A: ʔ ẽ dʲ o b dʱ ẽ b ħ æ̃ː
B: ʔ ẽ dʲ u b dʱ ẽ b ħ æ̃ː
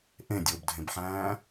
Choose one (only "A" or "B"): A